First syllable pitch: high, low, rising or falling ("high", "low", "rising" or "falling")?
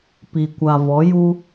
low